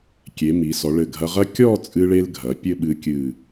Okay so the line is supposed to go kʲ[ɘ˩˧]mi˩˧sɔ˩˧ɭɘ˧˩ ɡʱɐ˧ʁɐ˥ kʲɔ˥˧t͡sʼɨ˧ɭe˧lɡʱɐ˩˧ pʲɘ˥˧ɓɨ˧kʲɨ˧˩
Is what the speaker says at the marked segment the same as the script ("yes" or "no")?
no